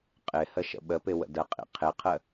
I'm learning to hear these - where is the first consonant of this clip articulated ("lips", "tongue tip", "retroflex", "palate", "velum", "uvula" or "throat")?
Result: uvula